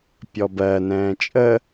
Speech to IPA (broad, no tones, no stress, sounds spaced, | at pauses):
pʲ ɔ b ɜ n ɛ̃ː t͡ʃʼ ə